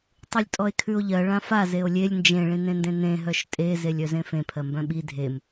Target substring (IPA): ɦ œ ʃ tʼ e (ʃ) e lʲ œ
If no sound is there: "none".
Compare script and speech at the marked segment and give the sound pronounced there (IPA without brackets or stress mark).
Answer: z